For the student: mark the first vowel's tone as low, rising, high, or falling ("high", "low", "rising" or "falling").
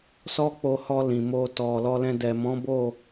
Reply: high